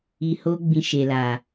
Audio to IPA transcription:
i˧ho˦ ɡ͡bĩ˧ ʃe˨la˨

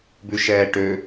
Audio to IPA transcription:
bʉʃɛːʈø

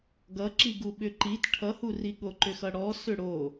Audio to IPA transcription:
ɡʌǁiɡu ɓʏǃit ʈʰʌhuri ɠoǃʏxʌɽɔ sʏɽo

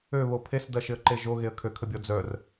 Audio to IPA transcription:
øβo pʰesdɐʃɪə̯ǃe ʒoɣeə̯ kʰøkʰəbʲɔ d͡zœr

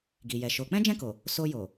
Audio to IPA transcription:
ɡi˨jɛ˨ʃo˨˦ k͡pɛ̃˦d͡ʒɛ̃˦˨ko˨ | so˧jo˨

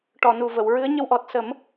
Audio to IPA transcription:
ʈɔ˨˩˨nu˨˩və˨˩˨wɹɨ˧˥ə̯ ɲə˧wʔɔ˨˩t̚sə˨˩˦m

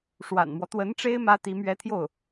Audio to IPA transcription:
ʂwa̰˨˩nmwɔ˦ t̪wə˧˥nʈ͡ʂe˥ɪ̯ mä˥t̪i˧˥ mɥɛ˥t̪ʰjo˥˩ʊ̯

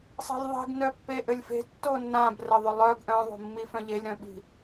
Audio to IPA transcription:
sˤe̤lʲðˤi̤ɡ nœpːeʔɘlʲfe̤ tːonːãb rɘðˤʏlˠœɡ ʔœ̃ðˤo̤mːi fœ̃ʎelʲɾœ̃ɓi̤

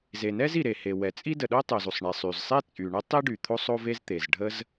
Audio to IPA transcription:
ze˩nɛ˥zi˩ ɾe˩ he˩wɛ˩t͡sʼi˥ də˩ɗo˥tˤo˩z u˩sˤɳe˩sˤy˩zsˤe˥ t͡sʼy˩ɳə˥tˤi˥ɖy˩ t̪ʰo˥sˤo˥ve˥zt̪e˩z ɖʱə˥z

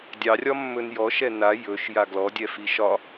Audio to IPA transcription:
dʲɑrʲɒ mːɵnjɔ ʃɛna jɵʃ jaɡlɔdʲɛfi ʃɒ

